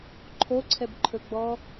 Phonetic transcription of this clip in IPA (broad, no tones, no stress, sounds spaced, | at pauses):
ǃʰ o ǀʰ ɛ b ǃʰ ɵ ɡ͡b ɔ